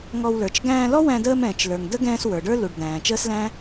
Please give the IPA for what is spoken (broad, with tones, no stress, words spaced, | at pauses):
ŋɔ˧wlə˞˨t͡ʃ ɡæ̃ː˧lɔ˦wæ̃˧dəː˧m ɛ̃ː˨t͡ʃlə˞˨ŋ də˦ ɡɛ̃ː˧s wə˞˨ɖə˞˦lu˨ɖ d̪æ̃ː˨ t͡ʃəː˦slæ̃˦